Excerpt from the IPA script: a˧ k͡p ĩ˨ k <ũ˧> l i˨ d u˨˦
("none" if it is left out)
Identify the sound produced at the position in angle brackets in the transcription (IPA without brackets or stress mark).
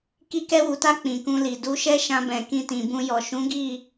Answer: ũ˧